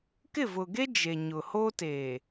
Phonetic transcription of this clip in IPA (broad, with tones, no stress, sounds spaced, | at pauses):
k ɪ˦˨ v ʊ˨ ɡ e˦ d͡ʒ e˨ ɲ ʊ˨ h o˦ t eː˨